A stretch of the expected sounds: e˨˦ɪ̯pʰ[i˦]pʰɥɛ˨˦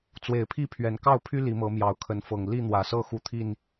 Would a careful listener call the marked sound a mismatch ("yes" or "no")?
yes